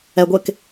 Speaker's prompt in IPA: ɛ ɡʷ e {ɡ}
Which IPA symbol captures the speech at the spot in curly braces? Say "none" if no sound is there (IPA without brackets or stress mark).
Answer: k